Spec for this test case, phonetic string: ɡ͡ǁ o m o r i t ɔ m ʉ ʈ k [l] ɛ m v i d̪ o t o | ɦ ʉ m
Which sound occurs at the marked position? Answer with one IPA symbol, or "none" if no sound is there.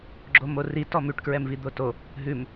ɹ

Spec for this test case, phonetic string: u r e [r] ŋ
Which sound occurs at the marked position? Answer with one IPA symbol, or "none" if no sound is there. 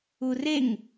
none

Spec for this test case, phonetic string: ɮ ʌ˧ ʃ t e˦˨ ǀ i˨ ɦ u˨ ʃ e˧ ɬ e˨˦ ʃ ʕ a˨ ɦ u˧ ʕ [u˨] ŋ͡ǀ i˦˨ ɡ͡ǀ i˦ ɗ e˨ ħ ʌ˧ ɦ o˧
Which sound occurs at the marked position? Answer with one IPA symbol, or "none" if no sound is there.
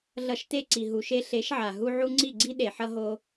u˧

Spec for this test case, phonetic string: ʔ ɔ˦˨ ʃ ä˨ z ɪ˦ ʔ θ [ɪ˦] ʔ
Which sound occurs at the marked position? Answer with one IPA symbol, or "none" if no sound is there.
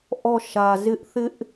ɪ˦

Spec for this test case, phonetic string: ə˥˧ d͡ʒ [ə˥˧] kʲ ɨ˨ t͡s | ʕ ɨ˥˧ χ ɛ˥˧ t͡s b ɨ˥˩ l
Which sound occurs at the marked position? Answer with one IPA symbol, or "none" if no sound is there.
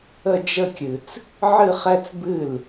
ə˥˧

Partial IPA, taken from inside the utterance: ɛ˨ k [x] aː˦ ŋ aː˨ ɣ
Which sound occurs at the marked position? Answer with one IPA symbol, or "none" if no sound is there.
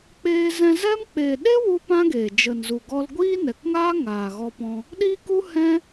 ŋ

